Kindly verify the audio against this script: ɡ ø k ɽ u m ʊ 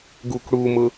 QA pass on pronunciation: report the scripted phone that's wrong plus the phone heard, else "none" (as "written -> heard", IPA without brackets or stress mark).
ø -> u